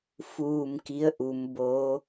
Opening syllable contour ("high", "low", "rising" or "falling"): low